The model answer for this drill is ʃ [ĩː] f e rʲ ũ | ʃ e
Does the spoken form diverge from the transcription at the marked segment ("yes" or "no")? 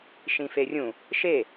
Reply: yes